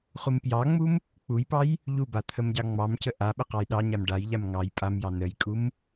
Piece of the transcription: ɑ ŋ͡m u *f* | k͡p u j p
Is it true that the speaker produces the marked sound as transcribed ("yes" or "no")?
no